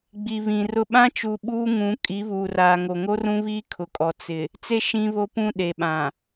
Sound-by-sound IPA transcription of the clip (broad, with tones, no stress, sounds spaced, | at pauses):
ɡ͡b i˨ β ĩ˨ r ʊ˦ ɓ ã˦ t͡ʃ u˨ ɓ uː˦ ŋ ũ˨˦ kʼ i˨˦ β uː˨ r aː˨ ŋ o˨ ŋ o˦ r ũ˦ β iː˦ kʰ ʊ˨ kʼ ɔ˨ t͡s ɪ˨ | t͡s e˦ ʃ ĩ˦ β o˦ p ũ˦ ɗ e˨ ɓ ã˨